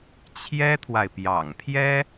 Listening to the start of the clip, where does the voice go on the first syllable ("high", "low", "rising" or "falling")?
high